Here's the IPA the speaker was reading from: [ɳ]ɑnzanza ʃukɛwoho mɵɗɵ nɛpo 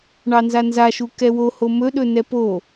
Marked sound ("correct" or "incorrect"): correct